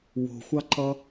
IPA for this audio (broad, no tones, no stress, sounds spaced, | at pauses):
w o̤ xʷ ɑ ǃ ʌ